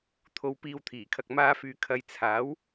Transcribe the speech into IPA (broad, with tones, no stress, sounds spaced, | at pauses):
t̪ʰ o˨˧ w p iː˨ w t̪ʰ iː˨˩ kʰ ɐ˨ k̚ m aː˧ f yː˨ kʰ ɐ˨ j t͡sʰ aː˨˥ w